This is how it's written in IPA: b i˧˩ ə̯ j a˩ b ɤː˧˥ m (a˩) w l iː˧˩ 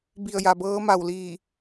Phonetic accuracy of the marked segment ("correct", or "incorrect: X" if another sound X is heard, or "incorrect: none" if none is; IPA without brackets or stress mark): incorrect: a˧˩